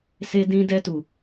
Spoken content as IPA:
s e˧ d ĩ˧ d ɛ˧ t u˨

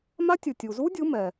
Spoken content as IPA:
m a˦˥ tʲ ɯ˩ tʲ u˩ z u˦˥ dʲ ɯ˨˦ m ɛ˩

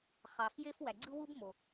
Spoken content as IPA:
χ ɑ˨ f j e˦ f w æ˨ ɡ͡ǀ ɯ˦ w u˦ b m o˨

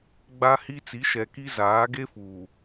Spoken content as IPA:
ɡ͡b a˦ h i˦ t͡s i˨˦ ʃ ɛ˨ k i˦ z aː˨˦ ɡ e˦ f uː˨

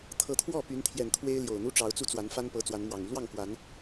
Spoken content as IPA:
t̪ʰ ɤ˨˦ t̪ʰ w ɔ˥˨ p y˨˦ n t̪ʰ j ɛ˨˩ n t̪ʰ w e˦ ɪ̯ l j o˨˩ ʊ̯ n̪ u˦ ʈ͡ʂ ɑ˨˦ ʊ̯ t͡s u˦ t͡s w a˨˦ n f a˦ n p ɤ˨˦ t͡s w a˨˦ n m w ɑ˨˩ ŋ y˨˦ l w ɑ˥˨ ŋ k w a˨˦ n

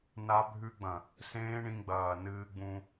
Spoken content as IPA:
n a˧ bʱ ʉ˧ ɡ͡b ɐ̃˨ | s ẽː˦ ɳ ĩ˧ ɡ͡b ɐː˨ n ɨː˧ ɡ͡b ũ˧

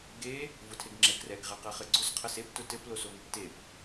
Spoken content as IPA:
ɡ e | v ʊ tʰ e ɡ ŋ͡ǁ ɛ ɡ r ɛ ɡ ʁ ɛ q ɛ χ ɘ ɡ͡ǀ ʊ s qʰ ɘ s e p t ʊ t ɘ p l o s o ŋ e p t e p

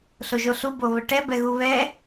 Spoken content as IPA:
ɬ o ʒ o ɬ u b o β ə ʈ ɛ b ɛ ɣ u β ɛ

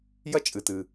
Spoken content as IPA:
j ɐ˥ t͡ʃʼ ɨ˩ t ɨ˩

